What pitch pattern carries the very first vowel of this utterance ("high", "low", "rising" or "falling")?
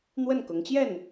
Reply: falling